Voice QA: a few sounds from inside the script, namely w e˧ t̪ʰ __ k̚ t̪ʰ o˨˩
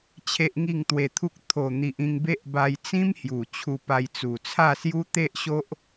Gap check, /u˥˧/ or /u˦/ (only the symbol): u˦